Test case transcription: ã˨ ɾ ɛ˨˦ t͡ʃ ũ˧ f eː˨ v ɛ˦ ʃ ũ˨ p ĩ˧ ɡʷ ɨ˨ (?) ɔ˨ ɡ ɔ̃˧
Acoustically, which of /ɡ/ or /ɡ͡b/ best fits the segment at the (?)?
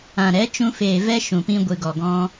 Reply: ɡ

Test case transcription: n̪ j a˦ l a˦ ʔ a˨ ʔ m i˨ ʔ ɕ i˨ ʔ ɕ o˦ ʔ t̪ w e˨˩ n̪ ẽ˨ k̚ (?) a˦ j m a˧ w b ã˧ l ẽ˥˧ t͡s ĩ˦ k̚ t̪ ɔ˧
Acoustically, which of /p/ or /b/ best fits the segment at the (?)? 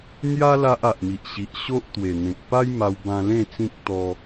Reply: p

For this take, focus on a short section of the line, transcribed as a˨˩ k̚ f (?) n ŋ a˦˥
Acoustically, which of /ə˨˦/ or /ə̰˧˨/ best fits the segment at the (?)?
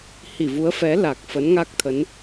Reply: ə˨˦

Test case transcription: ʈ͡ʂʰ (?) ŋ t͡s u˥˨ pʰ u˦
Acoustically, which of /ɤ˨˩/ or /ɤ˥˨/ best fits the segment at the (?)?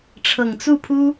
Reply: ɤ˨˩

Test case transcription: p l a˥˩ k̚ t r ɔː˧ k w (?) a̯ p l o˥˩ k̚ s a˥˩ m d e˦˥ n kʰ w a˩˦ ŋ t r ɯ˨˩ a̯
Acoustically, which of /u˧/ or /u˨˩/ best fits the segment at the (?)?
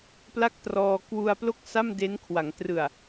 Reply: u˧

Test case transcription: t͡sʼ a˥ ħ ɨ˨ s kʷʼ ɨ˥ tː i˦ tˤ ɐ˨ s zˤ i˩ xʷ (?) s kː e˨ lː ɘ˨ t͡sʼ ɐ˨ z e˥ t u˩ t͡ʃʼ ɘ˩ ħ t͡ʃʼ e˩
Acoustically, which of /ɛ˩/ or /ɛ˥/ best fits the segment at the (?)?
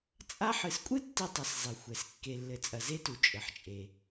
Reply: ɛ˩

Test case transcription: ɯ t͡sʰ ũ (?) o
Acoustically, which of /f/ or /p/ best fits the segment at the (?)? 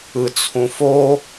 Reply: f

